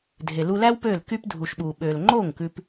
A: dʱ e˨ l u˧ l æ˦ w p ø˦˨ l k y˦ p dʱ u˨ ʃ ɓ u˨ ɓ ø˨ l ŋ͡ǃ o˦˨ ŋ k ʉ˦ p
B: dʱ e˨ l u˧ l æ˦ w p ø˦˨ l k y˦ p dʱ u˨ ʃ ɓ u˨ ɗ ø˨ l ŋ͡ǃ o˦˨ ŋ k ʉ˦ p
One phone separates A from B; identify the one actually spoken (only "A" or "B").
A